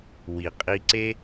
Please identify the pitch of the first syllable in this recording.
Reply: low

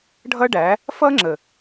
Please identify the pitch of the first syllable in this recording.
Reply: high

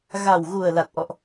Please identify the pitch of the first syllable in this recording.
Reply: low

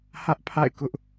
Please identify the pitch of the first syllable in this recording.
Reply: high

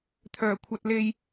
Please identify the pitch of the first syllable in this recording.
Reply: low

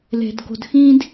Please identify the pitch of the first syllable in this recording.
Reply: low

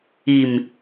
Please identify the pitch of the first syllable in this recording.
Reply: low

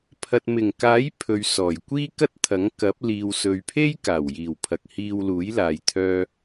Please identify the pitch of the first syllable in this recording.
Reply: low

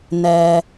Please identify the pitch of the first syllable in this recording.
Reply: low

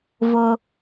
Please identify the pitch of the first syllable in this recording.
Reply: low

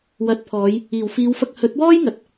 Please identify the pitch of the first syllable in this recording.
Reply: rising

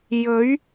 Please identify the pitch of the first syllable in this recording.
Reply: rising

